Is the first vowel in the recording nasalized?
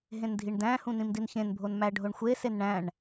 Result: yes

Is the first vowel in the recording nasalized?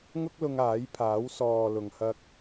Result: no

